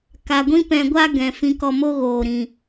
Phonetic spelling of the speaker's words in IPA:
k a˨ ɡʷ ĩ˦ p ɛ̃˧ ɡʷ a˦ ɡ ɛ̃˨ f ĩ˧ k ɔ˧ m o˦ ɣ oː˨ ɾ ĩ˨

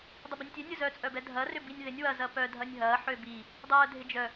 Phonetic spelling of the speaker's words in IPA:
dˤ ʊ b i nʲ tʲ ø nʲ ʊ z œ t͡sʼ œ b ɛ dʱ ɐ r ʏ b i nʲ ð ɪ nʲ w ɐ z ɐ p œ dʱ ɐ nʲ ɦ ɐː ħ ø b i | dˤ œː dʱ ɪ d͡ʒ œ

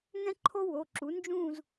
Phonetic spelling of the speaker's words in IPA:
ŋ ɛ̃˥ ǃʰ o˥ w o˩˧˩ ǁ u˨˥ n d͡ʒ ũ˥˧ z

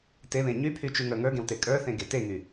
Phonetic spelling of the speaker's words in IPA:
t e β ẽ ɲ y pʰ y t͡ʃ y ŋ ə˞ ŋ ə˞ ɡ ẽ w t e kʼ ə˞ θ ẽ ɡ e t e ŋ y

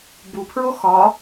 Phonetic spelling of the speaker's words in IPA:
b u pʰ ɹ o x ɒ

